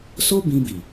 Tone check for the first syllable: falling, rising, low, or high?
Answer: high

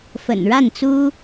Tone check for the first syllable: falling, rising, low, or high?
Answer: low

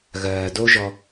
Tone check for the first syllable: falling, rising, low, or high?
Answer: low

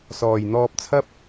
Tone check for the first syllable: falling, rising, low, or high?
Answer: low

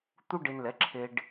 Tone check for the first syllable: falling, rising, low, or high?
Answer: high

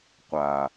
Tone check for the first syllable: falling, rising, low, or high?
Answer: low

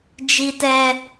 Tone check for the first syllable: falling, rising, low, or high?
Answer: high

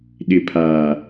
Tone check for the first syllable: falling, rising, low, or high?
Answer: low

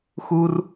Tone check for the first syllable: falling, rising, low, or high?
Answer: high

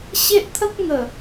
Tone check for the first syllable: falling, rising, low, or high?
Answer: high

